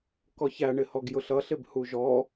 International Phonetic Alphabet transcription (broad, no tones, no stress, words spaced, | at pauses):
kɔçæɳɪ hɔɡjʊɬʌɬɪb huʒɔ